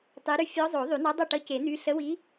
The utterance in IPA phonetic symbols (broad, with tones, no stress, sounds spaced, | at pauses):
tˤ i˧˥ ɾ y˥ fʲ ɔ˧˥ zˤ o˨˩˦ ðˤ y˨˩˦ n ɔ˧˥ dˤ o˥˨ ʈ ʌ˧˥ c e˨˩˦ n̪ y˧˥ ɬ ə˧˥ w i˧˥